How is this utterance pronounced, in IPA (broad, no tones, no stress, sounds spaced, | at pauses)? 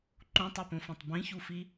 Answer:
ǃ ũ tˤ o p õ f ã tˤ b ĩ ç u f i